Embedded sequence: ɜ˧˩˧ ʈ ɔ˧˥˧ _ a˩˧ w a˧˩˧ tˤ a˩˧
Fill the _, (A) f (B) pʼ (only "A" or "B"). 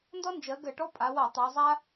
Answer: B